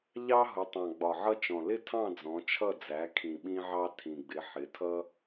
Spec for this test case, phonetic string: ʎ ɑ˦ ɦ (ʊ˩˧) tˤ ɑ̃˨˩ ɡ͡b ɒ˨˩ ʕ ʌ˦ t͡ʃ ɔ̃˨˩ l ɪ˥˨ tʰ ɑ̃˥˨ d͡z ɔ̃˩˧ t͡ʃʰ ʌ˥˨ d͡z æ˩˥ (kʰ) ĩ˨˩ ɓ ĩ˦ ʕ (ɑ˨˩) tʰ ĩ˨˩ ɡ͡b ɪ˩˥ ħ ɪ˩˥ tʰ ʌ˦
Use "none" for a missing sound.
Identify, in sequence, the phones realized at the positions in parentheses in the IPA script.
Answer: ʊ˩˧, kʰ, ɑ˦

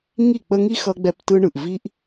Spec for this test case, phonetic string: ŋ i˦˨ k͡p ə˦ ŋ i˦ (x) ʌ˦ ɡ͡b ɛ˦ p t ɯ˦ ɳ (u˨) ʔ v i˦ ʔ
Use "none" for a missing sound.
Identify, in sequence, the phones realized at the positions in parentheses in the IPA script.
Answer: x, ɯ˨

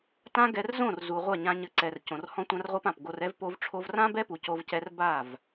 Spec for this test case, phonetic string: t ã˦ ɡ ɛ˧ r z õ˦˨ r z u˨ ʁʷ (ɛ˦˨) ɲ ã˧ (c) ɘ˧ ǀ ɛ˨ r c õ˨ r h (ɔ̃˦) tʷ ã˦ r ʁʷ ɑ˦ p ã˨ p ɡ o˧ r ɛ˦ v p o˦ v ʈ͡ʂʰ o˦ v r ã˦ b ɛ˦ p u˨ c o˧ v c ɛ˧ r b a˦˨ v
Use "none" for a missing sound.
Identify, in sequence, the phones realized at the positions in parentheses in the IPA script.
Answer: ɛ˦˨, ɲ, ɔ̃˦

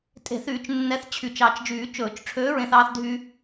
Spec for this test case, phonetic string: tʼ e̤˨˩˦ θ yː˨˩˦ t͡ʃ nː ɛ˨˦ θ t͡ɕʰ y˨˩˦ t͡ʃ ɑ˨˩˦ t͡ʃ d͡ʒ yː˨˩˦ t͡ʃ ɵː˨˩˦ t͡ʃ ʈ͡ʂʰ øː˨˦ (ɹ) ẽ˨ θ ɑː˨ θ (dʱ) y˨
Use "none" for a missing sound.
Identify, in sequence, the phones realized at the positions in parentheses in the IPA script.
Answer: ɹ, dʱ

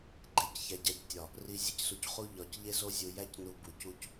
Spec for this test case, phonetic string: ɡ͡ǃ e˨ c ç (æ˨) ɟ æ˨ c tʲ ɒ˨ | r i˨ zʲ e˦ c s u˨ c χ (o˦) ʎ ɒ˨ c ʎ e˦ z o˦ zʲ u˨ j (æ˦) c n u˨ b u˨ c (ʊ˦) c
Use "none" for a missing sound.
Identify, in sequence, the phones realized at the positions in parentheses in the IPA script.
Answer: æ˨, u˦, æ˦, u˦

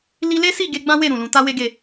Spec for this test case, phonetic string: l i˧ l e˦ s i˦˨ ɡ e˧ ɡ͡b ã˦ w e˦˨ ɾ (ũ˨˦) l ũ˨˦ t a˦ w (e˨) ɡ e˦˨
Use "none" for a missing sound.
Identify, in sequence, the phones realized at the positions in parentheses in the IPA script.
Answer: ũ˨, e˦

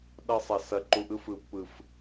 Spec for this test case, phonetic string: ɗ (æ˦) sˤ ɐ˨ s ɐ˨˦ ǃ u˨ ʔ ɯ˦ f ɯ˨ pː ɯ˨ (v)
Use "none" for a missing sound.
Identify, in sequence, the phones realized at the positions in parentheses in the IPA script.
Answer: ɐ˦, f

